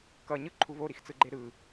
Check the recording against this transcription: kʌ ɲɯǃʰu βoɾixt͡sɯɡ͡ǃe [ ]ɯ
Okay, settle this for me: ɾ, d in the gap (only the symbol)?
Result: ɾ